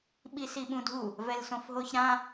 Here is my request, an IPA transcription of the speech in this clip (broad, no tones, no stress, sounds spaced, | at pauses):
ɓ i s i ɓ ũ dʱ u | v ɛ l s õ f ɦ o ç ɾ ã